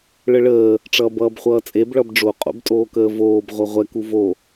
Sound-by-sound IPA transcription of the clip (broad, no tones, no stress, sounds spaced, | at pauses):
ɭ ə ɭ əː | ʈ͡ʂ ʌː b ʌː b χʷ ʌː t͡sʼ e b ɭ ʌ b ɖ͡ʐ o qʼ o̰ b tʼ oː k əː v oː b ʁʷ ʌ ʁʷ ɛ k u v o